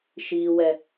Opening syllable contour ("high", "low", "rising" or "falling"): high